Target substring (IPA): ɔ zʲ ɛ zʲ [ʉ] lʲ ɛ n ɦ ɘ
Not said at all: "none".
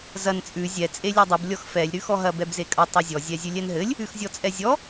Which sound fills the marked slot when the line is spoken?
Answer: ʉ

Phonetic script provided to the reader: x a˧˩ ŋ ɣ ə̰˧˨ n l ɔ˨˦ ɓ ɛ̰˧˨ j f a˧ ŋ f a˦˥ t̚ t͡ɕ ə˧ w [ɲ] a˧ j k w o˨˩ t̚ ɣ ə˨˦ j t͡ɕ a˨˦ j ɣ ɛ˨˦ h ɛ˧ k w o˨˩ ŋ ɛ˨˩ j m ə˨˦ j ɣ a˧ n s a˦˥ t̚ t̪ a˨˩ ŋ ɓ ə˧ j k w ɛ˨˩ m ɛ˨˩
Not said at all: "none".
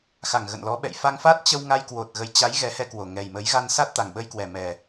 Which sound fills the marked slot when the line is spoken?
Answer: ŋ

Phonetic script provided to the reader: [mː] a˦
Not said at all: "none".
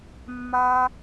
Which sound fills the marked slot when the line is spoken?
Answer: mː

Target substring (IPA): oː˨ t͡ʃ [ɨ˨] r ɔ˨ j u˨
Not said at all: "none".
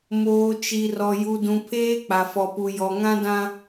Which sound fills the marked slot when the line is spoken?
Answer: i˨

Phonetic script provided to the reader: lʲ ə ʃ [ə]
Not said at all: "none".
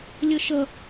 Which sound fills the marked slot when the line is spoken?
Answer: ə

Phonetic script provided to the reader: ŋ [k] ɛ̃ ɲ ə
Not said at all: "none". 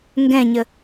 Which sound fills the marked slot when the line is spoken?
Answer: ɡ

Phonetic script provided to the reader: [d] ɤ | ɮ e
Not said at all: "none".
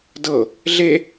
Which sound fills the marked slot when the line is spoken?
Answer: d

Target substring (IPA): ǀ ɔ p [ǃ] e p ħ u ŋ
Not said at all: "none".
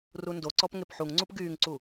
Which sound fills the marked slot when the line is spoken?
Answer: ŋ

